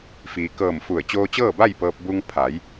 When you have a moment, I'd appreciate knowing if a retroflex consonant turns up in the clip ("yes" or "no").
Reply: no